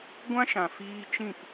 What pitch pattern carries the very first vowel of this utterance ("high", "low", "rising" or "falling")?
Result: high